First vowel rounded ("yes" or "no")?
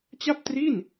no